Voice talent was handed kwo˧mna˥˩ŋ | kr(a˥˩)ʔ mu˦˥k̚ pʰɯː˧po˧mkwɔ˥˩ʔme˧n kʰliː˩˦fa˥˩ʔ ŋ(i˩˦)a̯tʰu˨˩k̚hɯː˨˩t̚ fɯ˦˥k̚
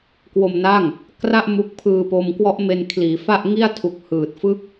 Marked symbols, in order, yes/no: yes, no

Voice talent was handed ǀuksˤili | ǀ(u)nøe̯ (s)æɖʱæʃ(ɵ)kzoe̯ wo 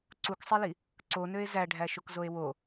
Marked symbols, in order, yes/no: no, no, no

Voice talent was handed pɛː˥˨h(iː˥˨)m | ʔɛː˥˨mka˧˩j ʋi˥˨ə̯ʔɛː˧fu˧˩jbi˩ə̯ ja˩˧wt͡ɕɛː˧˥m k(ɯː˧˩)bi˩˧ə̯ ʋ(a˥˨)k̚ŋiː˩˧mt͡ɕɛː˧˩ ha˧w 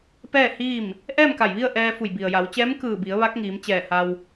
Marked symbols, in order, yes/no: yes, yes, no

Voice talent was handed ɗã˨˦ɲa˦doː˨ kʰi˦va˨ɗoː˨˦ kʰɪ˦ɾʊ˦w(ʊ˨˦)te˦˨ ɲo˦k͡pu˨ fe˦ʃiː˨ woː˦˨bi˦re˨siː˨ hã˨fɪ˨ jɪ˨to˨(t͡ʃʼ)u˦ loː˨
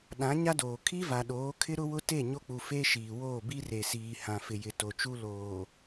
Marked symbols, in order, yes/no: no, no

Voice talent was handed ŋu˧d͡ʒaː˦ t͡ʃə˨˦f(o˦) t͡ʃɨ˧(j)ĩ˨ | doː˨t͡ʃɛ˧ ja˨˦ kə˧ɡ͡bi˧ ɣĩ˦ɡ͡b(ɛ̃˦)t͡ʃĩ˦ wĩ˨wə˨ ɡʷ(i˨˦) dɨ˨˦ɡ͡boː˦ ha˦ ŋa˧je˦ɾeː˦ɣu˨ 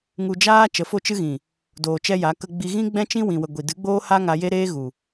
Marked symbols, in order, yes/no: yes, no, yes, no

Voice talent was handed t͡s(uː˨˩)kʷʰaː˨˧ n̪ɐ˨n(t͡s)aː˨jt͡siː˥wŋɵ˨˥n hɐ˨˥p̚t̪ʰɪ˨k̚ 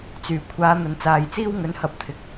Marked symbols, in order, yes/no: no, yes

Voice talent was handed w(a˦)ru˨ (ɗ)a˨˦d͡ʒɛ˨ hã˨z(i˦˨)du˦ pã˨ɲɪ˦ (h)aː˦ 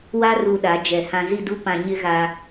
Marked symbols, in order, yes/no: yes, yes, yes, no

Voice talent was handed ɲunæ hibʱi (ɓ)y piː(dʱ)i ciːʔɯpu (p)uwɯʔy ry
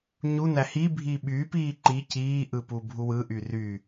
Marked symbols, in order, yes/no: yes, no, no

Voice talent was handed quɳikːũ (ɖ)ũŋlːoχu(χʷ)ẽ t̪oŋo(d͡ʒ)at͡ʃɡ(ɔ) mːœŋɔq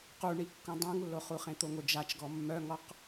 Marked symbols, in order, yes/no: no, no, yes, yes

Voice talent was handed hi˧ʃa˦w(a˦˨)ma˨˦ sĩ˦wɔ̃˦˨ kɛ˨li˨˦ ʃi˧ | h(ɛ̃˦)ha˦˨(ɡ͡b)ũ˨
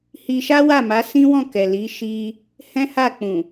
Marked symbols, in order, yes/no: yes, yes, no

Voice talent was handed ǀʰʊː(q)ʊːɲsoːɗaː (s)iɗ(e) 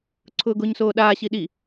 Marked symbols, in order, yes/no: no, no, no

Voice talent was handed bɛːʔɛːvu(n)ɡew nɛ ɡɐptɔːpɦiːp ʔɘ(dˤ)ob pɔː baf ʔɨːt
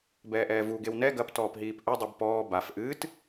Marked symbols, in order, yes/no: no, yes

